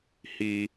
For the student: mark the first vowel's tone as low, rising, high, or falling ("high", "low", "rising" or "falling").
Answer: high